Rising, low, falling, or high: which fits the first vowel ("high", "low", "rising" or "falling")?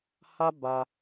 high